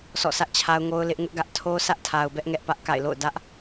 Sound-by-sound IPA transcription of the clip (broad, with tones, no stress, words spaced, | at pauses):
sʰɔ̰˦˨sʰä˦ʔt͡ɕʰa˦ʊ̯ ŋo˦ʊ̯lɪ˦ʔ ŋʊ˦ʔɡä˦ʔ tʰo˦ sä˦ʔtʰa˨ʊ̯bɛ˦ʔ ŋɛ˦ʔpä˦ʔka̰˦˨ɪ̯lo̰˦˨ʊ̯ dä˦ʔ